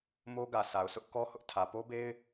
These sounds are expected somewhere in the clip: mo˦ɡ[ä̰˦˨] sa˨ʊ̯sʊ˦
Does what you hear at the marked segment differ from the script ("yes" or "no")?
yes